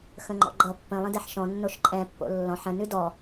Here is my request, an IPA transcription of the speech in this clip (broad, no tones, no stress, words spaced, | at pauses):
xə̃ŋ͡ǃɔ̰ɡ͡ǃʌ pːə̃ lˠə̃dɛħʃɔ̃ nːoʃǃʼɛ̃pːo̰ lːɔ̃ħ ə̃nʉ dɔ